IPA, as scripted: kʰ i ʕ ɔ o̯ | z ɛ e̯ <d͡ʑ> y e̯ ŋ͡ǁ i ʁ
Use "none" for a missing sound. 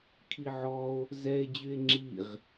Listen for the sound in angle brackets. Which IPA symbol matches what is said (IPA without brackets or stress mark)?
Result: d͡ʑ